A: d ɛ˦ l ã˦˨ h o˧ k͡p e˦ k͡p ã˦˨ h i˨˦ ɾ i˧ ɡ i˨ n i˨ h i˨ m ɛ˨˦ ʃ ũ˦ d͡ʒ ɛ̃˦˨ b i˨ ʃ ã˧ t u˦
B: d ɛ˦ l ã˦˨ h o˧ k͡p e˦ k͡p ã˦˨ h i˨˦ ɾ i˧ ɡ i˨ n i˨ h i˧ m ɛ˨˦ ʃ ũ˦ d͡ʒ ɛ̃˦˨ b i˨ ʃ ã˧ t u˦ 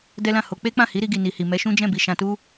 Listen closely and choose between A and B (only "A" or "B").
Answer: A